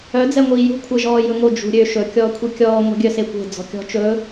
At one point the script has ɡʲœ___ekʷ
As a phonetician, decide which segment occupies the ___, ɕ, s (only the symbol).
s